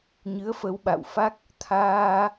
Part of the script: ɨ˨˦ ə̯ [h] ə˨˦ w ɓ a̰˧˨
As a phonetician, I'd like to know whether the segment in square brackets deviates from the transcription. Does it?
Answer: yes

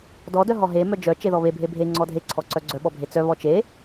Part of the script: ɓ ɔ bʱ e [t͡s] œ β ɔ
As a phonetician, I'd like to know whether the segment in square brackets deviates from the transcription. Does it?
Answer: no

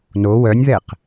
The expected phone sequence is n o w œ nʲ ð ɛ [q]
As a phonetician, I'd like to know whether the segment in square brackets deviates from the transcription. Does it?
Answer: no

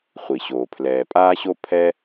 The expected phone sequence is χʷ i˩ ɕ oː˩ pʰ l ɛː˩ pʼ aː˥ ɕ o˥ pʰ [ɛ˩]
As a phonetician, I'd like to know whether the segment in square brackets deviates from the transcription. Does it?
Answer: yes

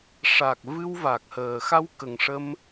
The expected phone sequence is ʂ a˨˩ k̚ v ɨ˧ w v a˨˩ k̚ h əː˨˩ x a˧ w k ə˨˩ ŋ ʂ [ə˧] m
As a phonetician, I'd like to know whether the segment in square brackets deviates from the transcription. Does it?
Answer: no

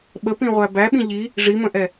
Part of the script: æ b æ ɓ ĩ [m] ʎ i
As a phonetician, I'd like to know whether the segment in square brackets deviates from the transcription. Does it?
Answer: yes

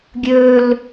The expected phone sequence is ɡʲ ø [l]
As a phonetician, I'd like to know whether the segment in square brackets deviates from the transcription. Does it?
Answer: no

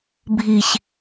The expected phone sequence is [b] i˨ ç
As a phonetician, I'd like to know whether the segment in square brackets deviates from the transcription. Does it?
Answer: yes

